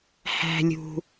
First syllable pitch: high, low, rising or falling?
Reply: low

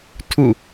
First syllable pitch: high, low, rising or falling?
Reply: falling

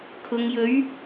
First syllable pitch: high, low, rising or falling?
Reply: low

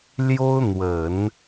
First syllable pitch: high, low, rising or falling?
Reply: high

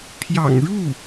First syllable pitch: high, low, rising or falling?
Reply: low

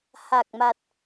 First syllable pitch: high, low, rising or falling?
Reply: low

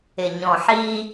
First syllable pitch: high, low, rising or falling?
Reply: low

